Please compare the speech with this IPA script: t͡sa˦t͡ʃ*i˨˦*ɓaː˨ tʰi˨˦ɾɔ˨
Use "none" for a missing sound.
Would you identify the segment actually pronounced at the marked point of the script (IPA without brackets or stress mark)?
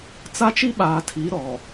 i˦